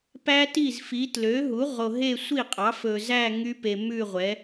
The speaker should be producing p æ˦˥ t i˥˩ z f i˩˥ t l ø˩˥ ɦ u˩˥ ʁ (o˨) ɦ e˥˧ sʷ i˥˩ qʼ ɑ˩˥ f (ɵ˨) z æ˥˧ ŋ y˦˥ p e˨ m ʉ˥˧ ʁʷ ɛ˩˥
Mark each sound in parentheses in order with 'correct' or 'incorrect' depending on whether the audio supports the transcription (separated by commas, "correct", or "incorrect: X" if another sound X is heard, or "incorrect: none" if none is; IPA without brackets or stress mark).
correct, correct